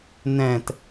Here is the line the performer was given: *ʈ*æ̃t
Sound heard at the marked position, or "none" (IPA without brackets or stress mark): n